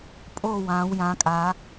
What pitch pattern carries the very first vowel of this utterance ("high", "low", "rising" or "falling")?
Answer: falling